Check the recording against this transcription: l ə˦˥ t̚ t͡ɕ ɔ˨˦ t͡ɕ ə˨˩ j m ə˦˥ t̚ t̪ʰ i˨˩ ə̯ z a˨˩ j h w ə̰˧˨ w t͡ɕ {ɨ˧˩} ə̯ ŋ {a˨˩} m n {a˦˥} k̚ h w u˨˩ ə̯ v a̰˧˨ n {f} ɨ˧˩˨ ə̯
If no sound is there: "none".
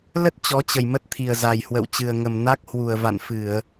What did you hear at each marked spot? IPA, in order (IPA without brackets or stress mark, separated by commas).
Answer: ɨ˨˩, ə˨˩, a˦˥, f